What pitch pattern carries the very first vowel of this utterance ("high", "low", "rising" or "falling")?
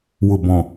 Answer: low